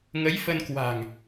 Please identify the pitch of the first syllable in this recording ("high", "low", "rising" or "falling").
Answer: rising